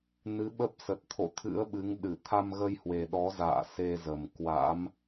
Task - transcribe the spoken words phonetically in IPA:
n ɨ˨˦ ɓ ə˦˥ p̚ s ə˨˩ t̚ t̪ʰ o̰˧˨ t̪ʰ ɨ̰˧˥ ə̯ ɓ ɨ˨˦ ŋ ɗ ɨ˧˩ t̪ʰ a˧ m ɣ ə˧ j h w e˨˩ ɗ ɔ˨˦ z a̰ː˧˨ s e˧ z ə˨˩ m k w a̰˧˥ m

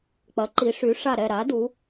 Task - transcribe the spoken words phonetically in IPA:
k͡p ɐ˩˥ ǃ i˩˥ ʂ y˩˥ ʂ a˦˨ ɾ ɛ˦˨ ɾ a˩˥ d u˩˥

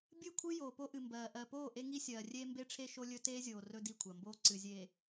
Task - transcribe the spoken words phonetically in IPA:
bʲ ɨ˦˨ kʷʰ ɨ˦ j oː˨ p o˦ ʔ ɨ˨ m b ɜː˨ ʔ ɜ˨ p oː˦˨ ʔ e˦ ŋ i˦ sʲ ɜː˨ rʲ eː˦ m b e˦ ʈ͡ʂʰ e˦ ʃ o˦ lʲ ɵ˦ t eː˦ zʲ oː˨ r ɵ˦ d i˦˨ kʷʰ ɜ˨ m b oː˦ ǀ ɨ˨ zʲ eː˨

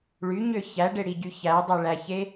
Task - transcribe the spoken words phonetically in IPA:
ɭ y ɲ ø ç æ ɖ e ɽ i ɟ y ç æ dˤ e ɭ æ ç e

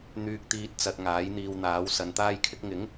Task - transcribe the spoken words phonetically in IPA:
n̪ yː˧ k̚ t̪ iː˧ t̚ t͡s ɐ˧ t̚ ŋ aː˨˥ j n̪ iː˧ w n̪ aː˨˥ w s ɐ˨˧ n t̪ aː˥ j kʰ ɪ˥ k̚ ŋ ɪ˨˥ ŋ

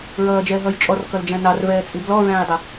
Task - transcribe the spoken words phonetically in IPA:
ɹ ʌː d͡ʒ ɛː ɦ ʌː j t͡ʃʼ ɔ r k ʌ l d͡ʒ æ̃ n ɑ r v ɛː t͡sʼ i b l ɔ ɹ æ̃ː j dˤ ɛ

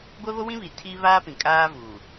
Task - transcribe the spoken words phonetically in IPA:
ɡʷ ɛ˦ β o˦ w ĩ˦ β i˨ tʰ iː˦ β aː˦ p ĩ˨ kʼ aː˦ v uː˨

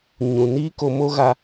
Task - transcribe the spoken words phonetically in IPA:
ɲ ũ˨ n iː˦ k o˧ m o˦ ɣ a˧

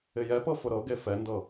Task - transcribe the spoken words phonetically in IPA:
ɪ j ɛ p ɤ f ʊ ɾ ɤ ɡ e f ɛ n d ɤ

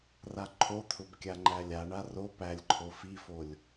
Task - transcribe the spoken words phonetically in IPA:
r a ǃʰ o t̪ʰ ʊ b kʲ a ŋ͡ǃ æ lʲ a ɳ a r o p æ lʲ ǃʰ o f i f o lʲ

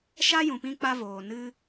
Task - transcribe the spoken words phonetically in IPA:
ʃ a˦ j ũ˨ p ĩ˧ k͡p a˦ v oː˨ n ɨ˧

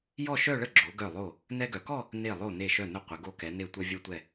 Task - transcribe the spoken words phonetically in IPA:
j ɔ˥˧ ʃ œ˥˧ ɭ ə˥˧ ɡ͡ǁ o˩˧ ɡ œ˧˩ lˠ o˧˩ | n ɛ˧ ɡ œ˩˧ k ɔ˥˧ | n e˧˩ lˠ o˧˩ n e˧˩ ʃ œ˧˩ n ə˧˩ qʷ ə˩˧ ɡ o˧ k ɛ˩˧ n e˧˩ tʷ œ˧ vʲ œ˧ tʷ ɛ˧˩

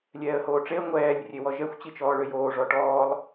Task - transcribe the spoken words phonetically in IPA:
lʲ ɛː ə̯ h oː ʈ͡ʂ e ə̯ ŋʷ ɛː lʲ rʲ e w ɔ ʒ ɛ xʷ t͡ɕ i t͡ʃ ɔː ɭ ø j oː ʐ ɔ ʈ ɔː lˠ

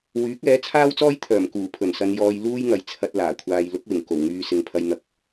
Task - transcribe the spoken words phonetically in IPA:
w yː˨˥ k̚ ɛː˨˥ t͡sʰ aː˥ w t͡s ɔː˥ j t̪ʰ œː˨˩ m k uː˨˩ pʰ ɵ˨˩ n s ɐ˧ n j ɔː˧ j l uː˥ j ŋ ɐ˨ j t͡sʰ ɐ˧ t̚ l aː˨˩ kʷʰ aː˧ j l ʊ˨˥ k̚ w ɪ˨˩ ŋ k o˨˩ w ŋ yː˧ s ɪ˨ ŋ pʰ ɐ˧ j n̪ ɐ˨˥ k̚

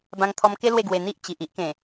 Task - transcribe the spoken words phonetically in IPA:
b ã˧ ŋ t̪ʰ ɔ˧ m k e˦ l w e˥˧ ɡ w e˧ n̪ i˦ ʔ t͡ɕ i˨ ʔ i˦ ʔ k ẽ˨˩

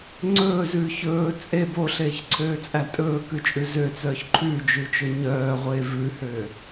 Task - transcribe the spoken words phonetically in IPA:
ŋ͡ǀ ɵː z ʉː ç ɵː t͡sʼ e b o ɬ eː ç ǀʰ øː t͡sʼ æ tʼ ɵː k ʉ t͡ʃʼ ʉ z ø t͡s œː ç ǃʰ ʉ d͡ʒ ʉ t͡ʃ ɵ ɲ œː ʁʷ eː v ʉ h øː

